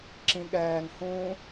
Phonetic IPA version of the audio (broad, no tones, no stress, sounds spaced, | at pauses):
ǁ ĩ ɠ ɛː ŋ h ũː